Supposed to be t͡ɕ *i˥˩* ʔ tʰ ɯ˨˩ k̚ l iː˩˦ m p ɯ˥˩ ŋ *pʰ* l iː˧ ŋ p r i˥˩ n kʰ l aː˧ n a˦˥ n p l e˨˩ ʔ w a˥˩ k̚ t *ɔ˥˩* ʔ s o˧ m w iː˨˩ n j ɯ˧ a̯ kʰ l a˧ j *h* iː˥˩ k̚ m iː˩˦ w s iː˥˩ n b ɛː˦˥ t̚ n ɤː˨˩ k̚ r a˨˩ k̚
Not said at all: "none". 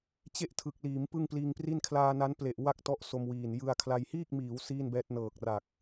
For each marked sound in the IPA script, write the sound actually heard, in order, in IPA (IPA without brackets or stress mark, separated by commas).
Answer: e˥˩, p, ɔ˦˥, h